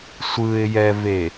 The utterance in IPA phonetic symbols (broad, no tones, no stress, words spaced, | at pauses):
sʷɯɪ̯jɛve